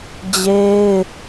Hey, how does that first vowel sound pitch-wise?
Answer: high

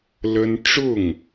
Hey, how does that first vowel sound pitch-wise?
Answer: high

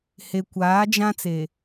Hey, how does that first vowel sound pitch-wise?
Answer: low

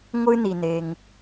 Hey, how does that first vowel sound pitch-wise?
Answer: high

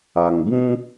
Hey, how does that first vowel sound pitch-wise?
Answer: low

